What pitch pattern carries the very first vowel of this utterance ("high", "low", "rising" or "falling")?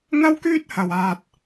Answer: high